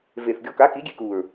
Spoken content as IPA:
v e˨˩ θ ɡʲ ɔ˧ k a˨˥ k i˨˥ ɡʲ e˧ k u˨˩ ɹ

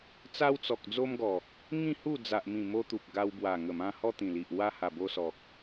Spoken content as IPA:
t͡s a˧ w t͡s ɔ˨ k̚ d͡z o˧ m ɡ ɔ˨˩ | ŋ ĩ˥˧ h u˥˧ d͡z a˨ ʔ m ĩ˨˩ m o˧ t̪ u˨ p̚ ɡ a˧ w b w a˨˩ ŋ ə˨˩ m ã˧ h ɔ˦ t̪ ĩ˨˩ l i˨ ʔ w a˦ h a˨˩ b o˧ s ɔ˨ k̚

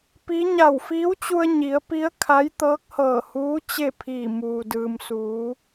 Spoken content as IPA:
p i˧˥ ɲ a˧˩ w f iː˧˥ w t͡ɕ u˧ ə̯ ɲ i˩˧ ə̯ p i˧˥ ə̯ kʰ a˧˥ j t̪ ɤː˧˥ k̚ h ɤː˧˩ h uː˧˥ t͡ɕ e˥˨ pʰ iː˧˩ m uː˩ d ɯː˩ m s uː˩˧

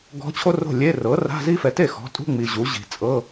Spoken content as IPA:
ɡ ɔ̤˧˥ t͡ɕʰ o˥ r o̤˥˩ lʲ e˧˥˧ r ɤ˩˥ r a̤˧˥˧ z i˥ f ɛ˩˥ t e˥˩ x ɔ̤˩˥ tʼ ṳ˧˥˧ ŋ͡m i˨ ʑ u˩˥ ʑ i̤˨ t͡sʼ ɤ˧˥˧

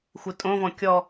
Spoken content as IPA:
xʷ ɨ tʼ õ v ɔ̃ kʲ ɔ

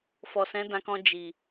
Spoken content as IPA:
f ɔ˨ s ɛ̃˨˦ d ã˧ k ɔ̃˧ d͡ʒ i˨

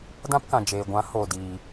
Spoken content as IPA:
d ã˦ p k ã˨ d͡ʒ eː˨ ɡʷ ã˨˦ h o˨ d iː˨

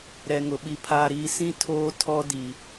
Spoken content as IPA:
ɾ ɛ˨ ŋ ʊ˨ ɓ i˨ pʰ aː˨ ɾ iː˨ s ĩ˦˨ tʰ oː˦ tʰ ɔ˦ d i˨

